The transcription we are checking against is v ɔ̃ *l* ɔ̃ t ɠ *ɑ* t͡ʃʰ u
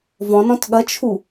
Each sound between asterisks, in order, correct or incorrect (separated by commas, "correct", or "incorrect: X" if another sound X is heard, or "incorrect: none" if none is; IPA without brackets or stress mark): incorrect: n, incorrect: ɐ